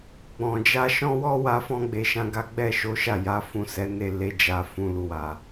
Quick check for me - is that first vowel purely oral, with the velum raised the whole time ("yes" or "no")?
no